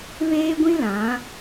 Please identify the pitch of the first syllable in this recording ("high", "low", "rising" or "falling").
high